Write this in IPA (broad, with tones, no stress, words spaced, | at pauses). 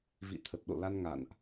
vḭ˧˨t̪ʰə˨˩t̚ɗo̰˧˨la˧n ŋa̰˧˨nʔ